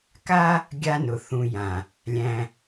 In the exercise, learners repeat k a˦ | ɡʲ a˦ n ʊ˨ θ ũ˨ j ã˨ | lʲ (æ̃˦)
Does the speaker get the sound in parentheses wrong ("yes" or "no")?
no